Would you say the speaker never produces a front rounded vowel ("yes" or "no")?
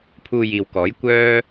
no